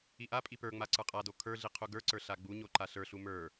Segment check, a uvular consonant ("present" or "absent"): present